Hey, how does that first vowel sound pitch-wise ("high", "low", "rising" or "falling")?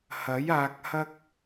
rising